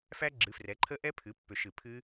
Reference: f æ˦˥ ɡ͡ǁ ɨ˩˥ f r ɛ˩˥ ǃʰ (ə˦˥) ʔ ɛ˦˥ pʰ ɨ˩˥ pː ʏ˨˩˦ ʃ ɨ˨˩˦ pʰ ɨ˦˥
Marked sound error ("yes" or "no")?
no